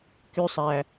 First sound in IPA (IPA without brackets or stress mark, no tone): k